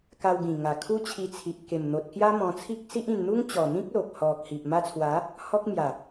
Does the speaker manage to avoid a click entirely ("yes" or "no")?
yes